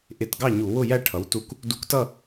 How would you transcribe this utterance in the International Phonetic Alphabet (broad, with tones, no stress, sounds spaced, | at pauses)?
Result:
ʔ ɪ˧˩˧ t ɡ ɑ˥˨ ɲ u˧˩˧ w ʊ˥˨ j æ˥˨ ʈʰ ʌ˩˥ w t u˧˩ k | d u˧ k t ʌ˥˨